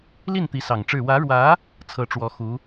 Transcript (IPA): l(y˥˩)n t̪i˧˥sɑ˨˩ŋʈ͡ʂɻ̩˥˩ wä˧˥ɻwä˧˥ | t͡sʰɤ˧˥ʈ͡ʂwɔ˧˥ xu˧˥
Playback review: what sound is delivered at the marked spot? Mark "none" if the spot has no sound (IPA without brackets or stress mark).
i˥˩